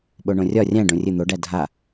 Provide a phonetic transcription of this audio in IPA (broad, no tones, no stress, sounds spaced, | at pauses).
ɓ o ɳ õ rʲ ɒ rʲ æ̃ ɖ õ rʲ ɨ n̪ o ɖ æ dʱ a